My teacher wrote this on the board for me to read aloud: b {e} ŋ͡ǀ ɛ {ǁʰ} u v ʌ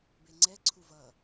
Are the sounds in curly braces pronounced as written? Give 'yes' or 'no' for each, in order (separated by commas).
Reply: yes, no